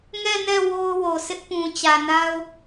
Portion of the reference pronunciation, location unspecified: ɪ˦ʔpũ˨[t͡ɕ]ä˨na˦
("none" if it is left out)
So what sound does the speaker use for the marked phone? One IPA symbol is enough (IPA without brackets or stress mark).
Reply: t͡ɕ